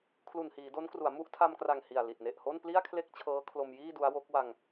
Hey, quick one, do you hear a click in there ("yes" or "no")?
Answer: no